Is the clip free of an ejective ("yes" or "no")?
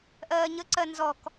yes